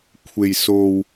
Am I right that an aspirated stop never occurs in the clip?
no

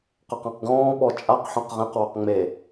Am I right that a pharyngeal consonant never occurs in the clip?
no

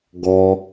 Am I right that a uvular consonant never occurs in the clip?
yes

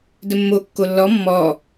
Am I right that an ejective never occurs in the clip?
yes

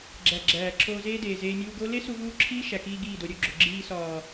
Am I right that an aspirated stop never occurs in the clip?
no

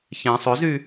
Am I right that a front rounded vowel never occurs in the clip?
no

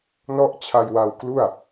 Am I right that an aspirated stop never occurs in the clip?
no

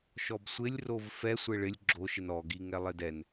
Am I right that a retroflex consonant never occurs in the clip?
no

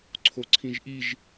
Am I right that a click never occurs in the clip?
no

